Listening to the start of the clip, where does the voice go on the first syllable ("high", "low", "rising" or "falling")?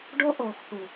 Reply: high